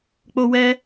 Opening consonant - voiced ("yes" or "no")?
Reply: no